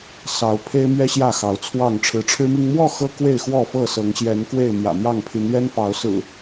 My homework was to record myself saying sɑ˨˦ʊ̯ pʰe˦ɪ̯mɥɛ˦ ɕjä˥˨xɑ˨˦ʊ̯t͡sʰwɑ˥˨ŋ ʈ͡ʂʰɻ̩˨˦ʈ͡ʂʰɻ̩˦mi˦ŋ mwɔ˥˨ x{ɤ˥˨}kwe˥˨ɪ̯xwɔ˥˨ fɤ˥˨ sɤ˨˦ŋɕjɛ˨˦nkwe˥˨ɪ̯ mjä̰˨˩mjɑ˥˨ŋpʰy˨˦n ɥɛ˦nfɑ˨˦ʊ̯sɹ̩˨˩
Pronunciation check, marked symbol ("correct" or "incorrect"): incorrect